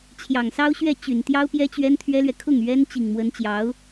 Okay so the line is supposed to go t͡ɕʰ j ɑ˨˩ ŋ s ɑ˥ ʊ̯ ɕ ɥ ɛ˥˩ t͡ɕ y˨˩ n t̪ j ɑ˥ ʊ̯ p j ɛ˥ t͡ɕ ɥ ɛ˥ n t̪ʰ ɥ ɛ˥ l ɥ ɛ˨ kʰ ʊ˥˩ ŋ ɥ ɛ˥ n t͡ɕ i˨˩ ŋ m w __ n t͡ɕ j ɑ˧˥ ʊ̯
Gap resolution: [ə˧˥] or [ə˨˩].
ə˧˥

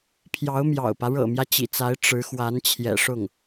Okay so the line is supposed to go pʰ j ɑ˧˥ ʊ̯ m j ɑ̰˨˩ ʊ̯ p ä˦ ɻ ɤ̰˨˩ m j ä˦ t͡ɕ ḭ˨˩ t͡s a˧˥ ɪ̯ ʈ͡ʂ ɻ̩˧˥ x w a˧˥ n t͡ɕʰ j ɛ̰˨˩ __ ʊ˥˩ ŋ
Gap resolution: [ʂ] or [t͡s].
ʂ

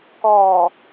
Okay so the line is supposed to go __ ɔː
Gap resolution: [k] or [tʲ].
k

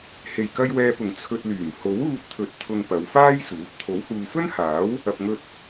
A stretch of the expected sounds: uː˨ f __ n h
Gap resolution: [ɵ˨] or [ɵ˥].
ɵ˥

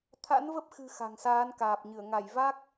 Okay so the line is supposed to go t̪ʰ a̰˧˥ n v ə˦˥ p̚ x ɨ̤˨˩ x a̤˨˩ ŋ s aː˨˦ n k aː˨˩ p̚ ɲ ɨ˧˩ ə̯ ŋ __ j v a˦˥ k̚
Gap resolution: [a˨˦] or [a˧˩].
a˧˩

